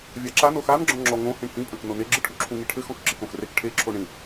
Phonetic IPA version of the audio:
vʲ a ǁ a n o x a n ɡ͡ǁ ɔ̃ ŋ͡ǁ ɔ ŋ õ h ĩ ɳ h ĩ pʼ ɐ̃ k n o n e ɡ͡ǁ ɨ ʈʰ u ǁʰ ũ ŋ i ʈʰ ɘ x ɔ̃ k ǁ ɨ k õ x r e k ʈʰ e ǁʰ o ɳ ĩ

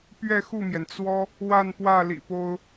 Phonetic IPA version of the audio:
p ɥ ɛ˥˧ x u˥˩ m j ɛ˩ n t͡s w ɔ˥ | w a˥˧ n p w ä˥˩ l ḭ˨˩ p o˥ ʊ̯

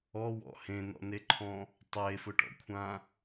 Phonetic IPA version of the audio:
ɔ w ɔ̰ h ẽ n ɔ̰ n e ǃʰ ɔ̃ | tˤ e f ʊ ʈ ɔ̰ kʷʰ ã

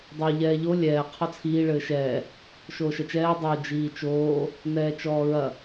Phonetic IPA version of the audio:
dˤ o ʎ ɛː ʎ o lʲ ɛː qʰ ɔ t͡sʰ iː ɭ ɘː ʃ ɛː | ʃ oː ʃ ɐ t͡ʃ ɛː dˤ o d͡ʒ iː t͡ʃ oː | n ɛː t͡ʃ ɔː ɹ ɐ

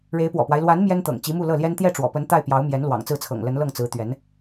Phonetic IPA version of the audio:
ɻ e˧˥ ɪ̯ p w ɔ̰˨˩ p w a˦ ɪ̯ l w a˧˥ n m j ɛ˥ n t̪ ɤ̰˨˩ ŋ t͡ɕ i˧˥ m u˥˧ l ɤ˥˩ l j ɛ˥ n t̪ j ɛ˥˩ ʈ͡ʂ w ɔ̰˨˩ p ə˧˥ n t̪ a˥˩ ɪ̯ p j ɑ˧˥ ʊ̯ m j ɛ˧˥ n l w ɑ̰˨˩ ŋ t͡s ɹ̩˥˩ t͡sʰ ɤ̰˨˩ ŋ l ə˧˥ n l ɤ˥˩ ŋ t͡s ɹ̩˧˥ t̪ ɥ ɛ˧˥ n

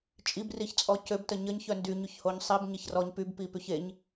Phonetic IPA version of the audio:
t͡ʃʼ i b r i ç t͡sʼ ɔ c ø b t ə ɲ ə ɲ ç œ n d y ɲ y ç h o ɲ sˤ i b ɲ e ç r ɔ ɲ p y b p i p y ç e ɲ

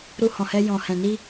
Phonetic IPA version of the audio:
ɾ u˧ h ɔ̃˨ h ɛ˧ j ɔ̃˨ h ɛ̃˨ n i˧

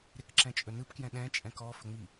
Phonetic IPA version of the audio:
ɾ ɪ k ǁ ɛ̃ t͡ʃʼ ɵ n ɯ p k j ɛ̃ ɗ ɛ̃ t͡ʃʼ ɛ̃ k ɔ f ɵ ŋ͡m i

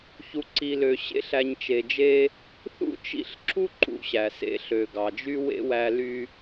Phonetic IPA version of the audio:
ç u˨ ǀ i˨ l ø˨ ɕ ḛ˦ ɬ æ˨ ɲ t͡ʃ e˨ d͡ʒ e˧ | θ ṵ˦ t͡ʃ ḭ˦˨ ɬ ǁ u˦ ǃ ṵ˦ ɕ æ˨ s ḛ˧ ɬ ø˨ ɡ ɑ˨ d͡ʒ y˦ w ḛ˦ w æ˧ l y˧

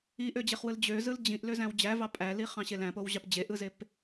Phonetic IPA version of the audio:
i ʔ ø d͡ʑ e χ w ɯ l d͡ʑ ø z ɯ l d͡ʑ ĩ ʔ l ø z æ̃ w d͡ʑ æ v ɑ pʼ æ l i χ ɑ̃ ɕ e l æ̃ p o w ʑ ɑ p d͡ʑ e ʔ ɯ z e p

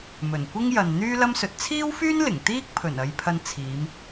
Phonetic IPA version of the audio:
m ɵ˨˩ n kʷ ɪ˥ ŋ j ɐ˨ n n̪ yː˥ l ɐ˥ m s ɵ˨˥ t̚ t͡sʰ iː˥ w f yː˥ n l ɪ˨˩ ŋ t̪ iː˥ k̚ pʰ ɵ˨˩ n ɐ˧ j pʰ ɐ˧ n t͡sʰ iː˨˧ m

